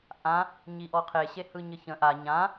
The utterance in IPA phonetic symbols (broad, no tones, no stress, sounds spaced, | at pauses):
ʔ ã | ɲ i ʔ ɔ qʰ e ɕ e h ɯ ɲ ɘ ç ə̃ ʔ a ɲ ã